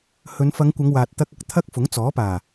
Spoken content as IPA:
hɵ˨˧n fɐ˨˧ŋkʷɐ˨˧ŋ waː˨t̚ t̪ɐ˧k̚ɐ˧k̚ t̪ʰɐ˥k̚ fʊ˨˥ŋt͡sɔː˨˥paː˨˩

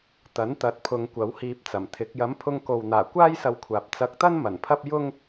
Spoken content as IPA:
t̪ɐ˨˥nt̪ɐ˨˥t̚pʰʊ˨˧ŋ kʷɐ˨˥whiː˧p̚t͡sɐ˨˩mt̪ʰɪ˨˥k̚ jɐ˨˥mpʰʊ˧ŋko˨wn̪aː˨˩ kʷaː˥jsɐ˧wkʷʰaː˨p̚ t͡sɐ˨˥k̚t̪ɐ˥n mɐ˨˩npʰɐ˥p̚ jʊ˥ŋ

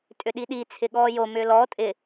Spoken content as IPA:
tʼʏɗiɗi t͡sʰɪɠɔːjo mʏːlɔː tʼɪ

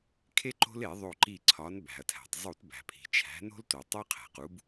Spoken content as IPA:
kʰe˦ǃo̤˦le˧˩˧ ðˤo˧˩ ǃi˧˩ ǀʰɒ˩˧n bæ̤˩ɐ̯tʰæ̤˩tˤzˤu˧˩˧t bæ̤˩pʰi̤˩t͡ʃʰæ̤˩˧ no̤˦lto˩tˤo˦ qʰæ̤˩qu˩˧b

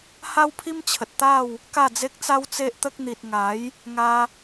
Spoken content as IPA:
ha˦wpʰi˦mt͡ɕʰə˨t̚t̪a˥˧w | ka˥˧d͡ze˦k̚t͡sa˦w t͡se˦ʔt̪ə˦k̚ n̪i˨t̚ŋa˨˦j | ŋa˧

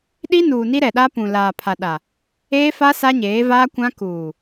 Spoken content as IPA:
ɗi˦nuː˨ ni˦ɾɛ˨ɗa˦ pũ˨ laː˨pʰa˨ɗa˨ | eː˦fa˦ sa˦ɲeː˨˦vaː˦kʷã˦ kuː˨

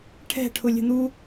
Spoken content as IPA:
ʈʰɛ̤ʈʰʊ lʲə̤n̪u

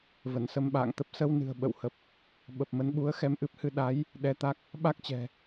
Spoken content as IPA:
və˧˩nsə˧mɓa̰ː˧˨ŋt̪ə˦˥p̚ sə˧wnɨ̤˨˩ə̯ ɓə̰˧˨whə˨˩p̚ | ɓə˨˩p̚mə˨˦n ɓu˨˦ə̯xɛ˧mʔɨ˦˥p̚hɨ˧ ɗa˨˦j | ɗɛ˧t̪a˦˥k̚ | ɓa˦˥k̚t͡ɕɛ̤˨˩

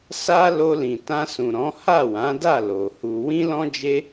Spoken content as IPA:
sa˦ lo˧lĩ˨tã˧sũ˨ ɾɔ̃˨˦ha˦˨wã˨˦da˦˨ lo˨hu˧ wĩ˦lɔ̃˦d͡ʒe˦

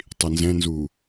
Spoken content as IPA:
tˤinzɛ̃nzuː

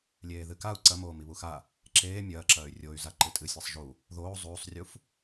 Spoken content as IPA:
lʲeːðɨkau̯ ǀɐmoː miβuxa | ǁeː mʲɐːǁɐːy̯ rʲoy̯za ǃɨtʼɨsʲasˤ ʒu | ðoː zˤuːsˤrʲuf

